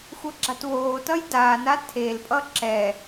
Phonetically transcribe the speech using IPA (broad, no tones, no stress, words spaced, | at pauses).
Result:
xʷʌɡ͡ǁatwoːtʌj daːna tʰelpʼʌ ǁɛ